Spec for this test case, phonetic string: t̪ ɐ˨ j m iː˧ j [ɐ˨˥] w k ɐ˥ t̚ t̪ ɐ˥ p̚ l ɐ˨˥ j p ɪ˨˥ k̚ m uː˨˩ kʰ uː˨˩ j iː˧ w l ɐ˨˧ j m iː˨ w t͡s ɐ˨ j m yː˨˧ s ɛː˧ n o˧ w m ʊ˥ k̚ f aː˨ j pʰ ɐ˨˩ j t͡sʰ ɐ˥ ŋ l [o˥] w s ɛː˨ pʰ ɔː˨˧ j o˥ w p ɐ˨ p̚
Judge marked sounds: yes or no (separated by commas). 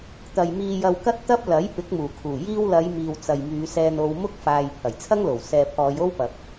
no, no